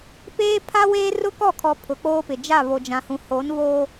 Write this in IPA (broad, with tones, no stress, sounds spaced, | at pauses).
p eː˦ pʰ a˦ w eː˦ r ʊ˦ k ɔ˦˨ kʰ ɔ˨ pʰ ʊ˨ k͡p oː˦ p ɪ˨ d͡ʒ a˦˨ β o˨ d͡ʒ ã˨ h ũ˨ h o˨˦ n β oː˦